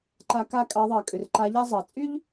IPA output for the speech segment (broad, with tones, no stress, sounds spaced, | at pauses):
ǃ a˧˥ k a˥ kʼ ɑ˧˥ ðˤ ɑ˨ kʼ ʏ˨ r ǃ a˧˥ ʎ a˥ zˤ ɑ˨ t͡sʼ y˥ ʎ